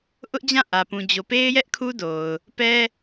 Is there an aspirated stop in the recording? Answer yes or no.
yes